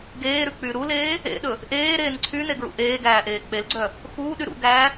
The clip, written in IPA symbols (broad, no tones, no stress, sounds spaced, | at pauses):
ɡ eː ɾ ʉ k͡p y ɾ u l eː | ḛ ɗ ɵ | ʔ eː ɾ eː n ǀʰ y n e ɡ ɹ ṵ ʔ eː ɡ æː ʔ eː k͡p e l ɡ͡ǀ œ | x uː ɗ y ɾ ṵ ɡ æː